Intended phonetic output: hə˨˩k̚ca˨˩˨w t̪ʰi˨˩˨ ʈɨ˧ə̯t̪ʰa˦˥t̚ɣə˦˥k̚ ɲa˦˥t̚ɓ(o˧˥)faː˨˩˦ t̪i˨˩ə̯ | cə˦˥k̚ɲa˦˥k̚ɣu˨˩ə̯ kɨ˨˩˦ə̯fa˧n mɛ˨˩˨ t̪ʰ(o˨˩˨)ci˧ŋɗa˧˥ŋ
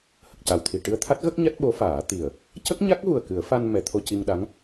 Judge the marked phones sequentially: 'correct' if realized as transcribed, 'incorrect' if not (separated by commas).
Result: correct, incorrect